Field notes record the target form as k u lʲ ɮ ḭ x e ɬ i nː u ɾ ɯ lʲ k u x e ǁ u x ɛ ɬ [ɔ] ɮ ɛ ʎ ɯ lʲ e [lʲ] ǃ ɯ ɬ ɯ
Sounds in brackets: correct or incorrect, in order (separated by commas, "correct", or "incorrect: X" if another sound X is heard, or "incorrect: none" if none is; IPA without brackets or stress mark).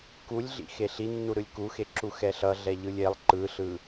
incorrect: ʌ, incorrect: lˠ